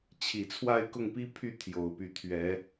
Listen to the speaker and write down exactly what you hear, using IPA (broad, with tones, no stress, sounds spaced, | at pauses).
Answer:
t͡ɕʰ i˨˩ t͡sʰ w a˥˨ ɪ̯ k ʊ˥˨ ŋ p i˦ pʰ y˥˨ t̪ʰ j o˨˩ ʊ̯ p y˨˦ t̪ʰ ɥ ɛ˨˦